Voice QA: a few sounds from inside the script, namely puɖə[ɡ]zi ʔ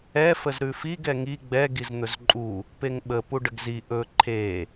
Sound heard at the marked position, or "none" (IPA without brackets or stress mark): ɡ